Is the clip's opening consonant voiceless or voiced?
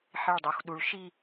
voiceless